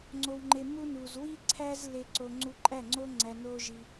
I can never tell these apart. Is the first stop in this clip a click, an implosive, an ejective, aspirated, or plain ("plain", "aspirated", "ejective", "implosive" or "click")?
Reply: click